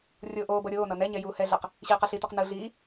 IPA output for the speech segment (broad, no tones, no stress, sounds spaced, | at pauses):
rʲ oː ʔ oː b ʌ ɾʲ oː n ʌ n ɛ ɲ ɛ j uː h ɛ ɮ ɛ q | ɕ iː q ɛ ɬ i t o q n ɯ ɮ iː